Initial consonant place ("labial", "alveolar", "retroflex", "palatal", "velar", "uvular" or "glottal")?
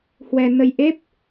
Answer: glottal